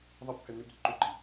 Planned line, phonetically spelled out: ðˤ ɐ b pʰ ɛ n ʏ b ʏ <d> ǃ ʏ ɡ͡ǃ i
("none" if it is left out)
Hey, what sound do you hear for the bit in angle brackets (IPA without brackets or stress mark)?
d